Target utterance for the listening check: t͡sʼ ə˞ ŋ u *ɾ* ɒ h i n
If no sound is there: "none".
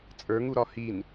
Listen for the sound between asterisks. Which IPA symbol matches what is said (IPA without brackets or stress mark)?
ɾ